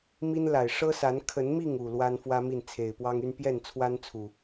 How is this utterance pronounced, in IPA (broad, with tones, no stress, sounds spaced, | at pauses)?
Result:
m i˦ n l a˨˩ ɪ̯ ʂ ɤ˦ s a˨˦ n kʰ ə˨˦ n m i˥˨ ŋ u˨˩ l w a˦ n f w ä˦ m i˥˨ n t͡sʰ e˨˩ ɪ̯ p w ɑ˦ ŋ y˦ n p j ɛ˥˨ n t͡sʰ w a˦ n t͡sʰ u˨˩